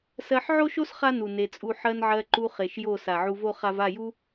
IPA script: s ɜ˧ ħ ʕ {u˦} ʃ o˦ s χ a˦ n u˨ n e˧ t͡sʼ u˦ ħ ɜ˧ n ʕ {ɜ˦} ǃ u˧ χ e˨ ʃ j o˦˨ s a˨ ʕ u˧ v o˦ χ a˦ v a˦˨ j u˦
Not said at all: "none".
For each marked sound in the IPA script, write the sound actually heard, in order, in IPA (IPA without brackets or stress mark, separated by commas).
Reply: o˦, ɜ˧